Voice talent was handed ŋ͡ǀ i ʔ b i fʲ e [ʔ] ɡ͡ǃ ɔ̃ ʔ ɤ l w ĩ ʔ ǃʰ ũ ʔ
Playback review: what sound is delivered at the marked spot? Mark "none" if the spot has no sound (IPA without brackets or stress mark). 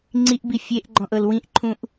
ʔ